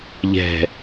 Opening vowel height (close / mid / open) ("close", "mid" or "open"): mid